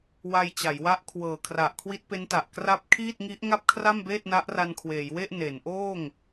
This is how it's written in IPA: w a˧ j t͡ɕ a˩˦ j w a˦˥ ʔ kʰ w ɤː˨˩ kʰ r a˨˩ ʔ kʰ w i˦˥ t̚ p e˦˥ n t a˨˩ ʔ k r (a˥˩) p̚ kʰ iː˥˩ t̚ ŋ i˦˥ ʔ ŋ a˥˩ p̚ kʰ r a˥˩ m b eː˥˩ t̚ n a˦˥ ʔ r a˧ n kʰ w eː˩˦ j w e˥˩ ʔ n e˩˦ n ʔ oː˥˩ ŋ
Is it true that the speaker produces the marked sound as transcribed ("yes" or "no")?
no